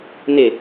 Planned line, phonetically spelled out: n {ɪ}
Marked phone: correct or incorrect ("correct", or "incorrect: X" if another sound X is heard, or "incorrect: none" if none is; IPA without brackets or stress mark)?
correct